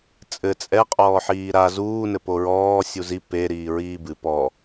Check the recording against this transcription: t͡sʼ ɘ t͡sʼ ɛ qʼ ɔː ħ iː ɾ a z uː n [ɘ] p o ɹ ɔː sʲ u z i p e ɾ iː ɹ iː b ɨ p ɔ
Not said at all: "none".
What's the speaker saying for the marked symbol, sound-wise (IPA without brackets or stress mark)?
ɘ